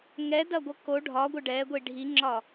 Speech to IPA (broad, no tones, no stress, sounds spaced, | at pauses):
ŋ ɛ d ɐ ɡʷ ʌ k o ɖʱ ɒ ɡʷ ə ɖ ɛ ɡʷ i ɖʱ i ŋ͡ǁ ɒ